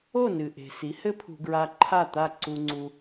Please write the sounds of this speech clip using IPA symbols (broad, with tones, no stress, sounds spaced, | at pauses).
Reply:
o˥˩ n ɨ˩ ʔ e̤˩ s i˩˥ h ɘ˥ pʰ ṳ˧ ɡ ɹ a˧ ǃʰ a˥˩ t̪ a˥˩ ǀ u˧ ŋ͡ǀ u˧